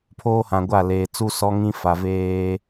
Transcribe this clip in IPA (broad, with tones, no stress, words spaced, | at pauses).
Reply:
pʰoː˦hã˨ɡʷa˦˨leː˨ t͡su˦sɔ˦ŋĩ˦fa˨ veː˦